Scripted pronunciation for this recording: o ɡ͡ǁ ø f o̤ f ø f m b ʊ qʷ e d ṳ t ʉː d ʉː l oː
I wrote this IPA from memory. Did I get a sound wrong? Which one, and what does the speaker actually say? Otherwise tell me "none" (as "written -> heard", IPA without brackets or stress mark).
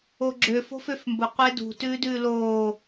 none